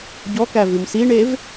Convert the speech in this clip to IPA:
ɟ ɔ k æ v ʉ m s i ɳ e v

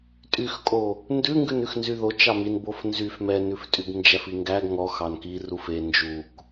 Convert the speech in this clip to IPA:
tʼ y x kʼ o | n d ʉ ŋ ɡ ʉ n ʉ x n z y ð o t͡ʃ ɑ m i n b o f n z y f m ɛ n ʉ f tʼ y ɡ n d͡ʒ æ f i ŋ ɡ æ ɡ ŋ ɔ x ɑ n k i r u f e n d͡ʒ u k

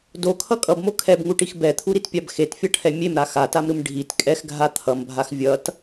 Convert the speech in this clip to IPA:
d o kʰ ʌ kʼ ʌ b m o kʰ ɛ b ŋ u ʈ i x b ɛ t̪ʰ u ɾ i t pʲ a b x e t fʲ ʌ ʈʰ ɛ mʲ e m ɾ a x a t a m ɾ ɯ m ɖʱ i t kʼ ɛ x ɡʱ a t̪ʰ ʌ m bʱ a x vʲ ʌ t

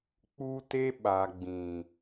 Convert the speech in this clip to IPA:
k͡p u˦ t e˦ ɓ a˨ ɡ͡b ĩ˨

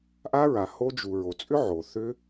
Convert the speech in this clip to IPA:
ʔ a˦˥ ɹ a˨ h o˦˥ d͡ʒ u˨ ɹ o˨ t͡sʼ ʏ˦˥ ʕ o˨ θ ʏ˦˥

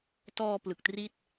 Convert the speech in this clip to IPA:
t ɔː˧ p l ɯ˨˩ k̚ t r i˥˩ t̚

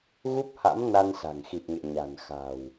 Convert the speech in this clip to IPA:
ɣ u˦˥ p̚ h a̰˧˥ m n a˧ n s a̤˨˩ ŋ x i˨˩ p̚ ŋ ḛ˧˨ ɲ a̤˨˩ n x a̤˨˩ w

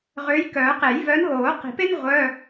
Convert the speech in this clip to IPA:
ʁ ø˨˦ j k œː˨˩˦ q e˨˩˦ j v œː˨˦ n ɦ oː˨˩˦ q i̤˨˩˦ p e˥ n ʁʷ œ˧˥˧

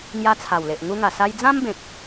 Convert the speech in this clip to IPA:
ŋ j a˦ t͡sʰ a˨˩ w l e˨ ʔ ŋ u˧ ŋ a˨˩ s a˧ j d͡z ã˦ m b ẽ˨ k̚

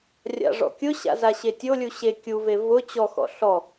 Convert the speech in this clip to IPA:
rʲ a̰ ʐ ɔ̰ kʲ ʊ ɕ a̰ z a ɕ e tʲ o lʲ u ɕ e kʲ u v e v ʊ t͡ɕ ɔ x ɔ̰ ɬ ɔ

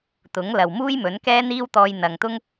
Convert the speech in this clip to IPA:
t̪ ʊ˨˥ ŋ l ɐ˨ w m uː˥ j m ɵ˨˥ n k ɛː˥ n̪ iː˥ w t̪ ɔː˧ j n̪ ɐ˨ ŋ t̪ ʊ˥ ŋ

